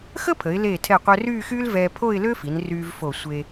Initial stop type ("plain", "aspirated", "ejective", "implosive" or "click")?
aspirated